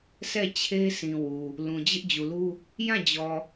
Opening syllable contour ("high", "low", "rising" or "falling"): falling